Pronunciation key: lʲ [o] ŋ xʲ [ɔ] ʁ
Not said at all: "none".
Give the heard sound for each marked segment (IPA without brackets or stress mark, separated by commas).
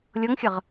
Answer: ɤ, ə